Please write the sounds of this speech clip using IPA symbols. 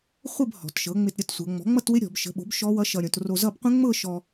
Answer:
χʷ ə˥˧ b h ɔ̤˩˧ t ʃ ɤ˩˥ ŋ͡m ɪ˧ t ɾʲ ɤ˩˥ t sʷ ɤ˩˧ ŋ͡m ɔ̤˩˥ ŋ͡m ʌ˥˧ t w ɪ˦˥ ɾʲ ɔ̤˩˧ b ʃ ə̤˩˥ ɓ o̤˩˥ b ʃ ɔ˦˥ w ʌ˦˥ ʃ ʌ˧ ɾʲ õ˩˧ t r o˧ z ʌ˥˧ b qʷ ə̃˦˥ ŋ͡m ɤ˥˧ ʃ ɔ˧

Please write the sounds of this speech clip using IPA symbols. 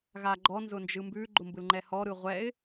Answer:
ɣ a ɡ͡ǃ ɔ n z ʊ n d͡ʒ ɯ m b ʉ ɡ͡ǃ ʊ m b ɯ l ŋ͡ǃ ɛ h ɔ ɾ ɯ ʁʷ ɛ ɪ̯

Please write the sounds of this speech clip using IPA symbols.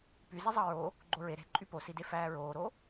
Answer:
p y z e zˤ ɑ ɹ o | ɡ͡ǃ o ɹ e ɾ e̤ ǃʼ y p o s i d e f æː ɹ oː ɾ o

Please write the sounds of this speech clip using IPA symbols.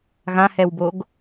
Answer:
ɣ ã h ɛ w b o ɡ

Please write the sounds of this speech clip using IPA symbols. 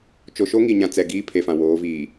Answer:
t͡ʃ o˨ ʃ o˦ ŋ i˨ ɲ ã˨ t͡s ɛ˨ ɡ iː˦ pʰ e˨ f ã˨ w oː˨˦ v iː˨

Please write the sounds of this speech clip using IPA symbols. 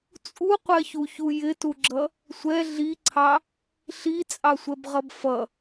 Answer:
t͡sʼ u qʷ ɛ ç u ç u j ɪ t u ɡ͡ǁ ʌ | sʷ ɛ ɮ i ǀʰ ɑ | ɬ i t͡sʼ ɑ sʷ ɛ b ʁ ʌ b f ʌ

